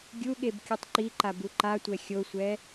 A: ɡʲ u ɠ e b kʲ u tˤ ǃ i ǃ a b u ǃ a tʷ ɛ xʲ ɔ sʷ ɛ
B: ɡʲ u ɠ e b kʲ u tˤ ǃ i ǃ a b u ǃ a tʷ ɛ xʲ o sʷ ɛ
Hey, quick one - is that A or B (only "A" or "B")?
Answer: B